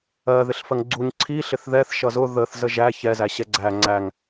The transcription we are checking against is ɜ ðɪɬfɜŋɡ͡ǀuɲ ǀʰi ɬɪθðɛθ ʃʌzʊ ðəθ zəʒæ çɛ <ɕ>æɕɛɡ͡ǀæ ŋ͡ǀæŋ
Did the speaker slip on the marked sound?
yes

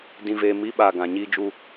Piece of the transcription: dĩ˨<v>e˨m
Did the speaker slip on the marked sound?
no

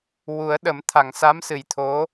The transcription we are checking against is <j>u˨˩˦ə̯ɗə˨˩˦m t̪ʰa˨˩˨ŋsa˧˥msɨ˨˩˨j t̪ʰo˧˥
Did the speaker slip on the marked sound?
yes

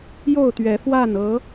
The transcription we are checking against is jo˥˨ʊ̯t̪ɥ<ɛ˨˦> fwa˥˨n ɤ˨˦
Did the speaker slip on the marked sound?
no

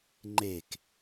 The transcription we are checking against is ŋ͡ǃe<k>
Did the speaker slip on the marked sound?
no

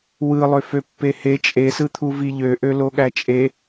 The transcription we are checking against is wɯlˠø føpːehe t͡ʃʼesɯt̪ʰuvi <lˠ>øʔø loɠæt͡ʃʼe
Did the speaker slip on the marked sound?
yes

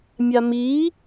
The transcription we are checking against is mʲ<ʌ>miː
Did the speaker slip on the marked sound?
yes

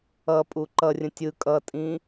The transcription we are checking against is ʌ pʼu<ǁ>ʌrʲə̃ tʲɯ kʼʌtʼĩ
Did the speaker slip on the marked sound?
yes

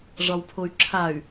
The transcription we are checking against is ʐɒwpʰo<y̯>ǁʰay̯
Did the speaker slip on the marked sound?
no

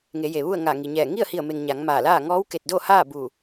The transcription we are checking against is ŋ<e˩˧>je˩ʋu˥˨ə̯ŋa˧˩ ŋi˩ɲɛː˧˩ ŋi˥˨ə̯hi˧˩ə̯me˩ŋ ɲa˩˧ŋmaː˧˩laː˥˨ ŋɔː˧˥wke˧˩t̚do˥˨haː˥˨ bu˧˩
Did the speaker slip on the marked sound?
no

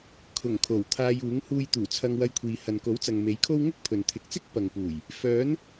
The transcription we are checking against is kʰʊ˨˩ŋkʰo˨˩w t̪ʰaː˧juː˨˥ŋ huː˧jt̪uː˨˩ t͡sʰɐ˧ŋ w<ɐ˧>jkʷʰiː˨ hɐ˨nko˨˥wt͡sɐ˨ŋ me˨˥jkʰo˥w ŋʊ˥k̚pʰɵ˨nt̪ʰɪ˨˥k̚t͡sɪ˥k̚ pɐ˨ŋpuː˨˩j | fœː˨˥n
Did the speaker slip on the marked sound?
no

